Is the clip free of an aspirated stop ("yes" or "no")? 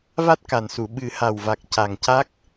yes